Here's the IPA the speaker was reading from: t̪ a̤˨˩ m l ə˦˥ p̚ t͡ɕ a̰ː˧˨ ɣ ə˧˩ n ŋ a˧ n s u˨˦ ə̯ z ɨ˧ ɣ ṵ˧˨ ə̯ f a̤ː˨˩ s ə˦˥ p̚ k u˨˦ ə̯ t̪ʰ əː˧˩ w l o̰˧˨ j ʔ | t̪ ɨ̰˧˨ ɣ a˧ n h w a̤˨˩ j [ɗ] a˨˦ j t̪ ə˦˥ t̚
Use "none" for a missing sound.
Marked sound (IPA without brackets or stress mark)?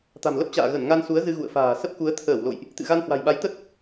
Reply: ɓ